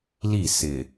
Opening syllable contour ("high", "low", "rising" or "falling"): falling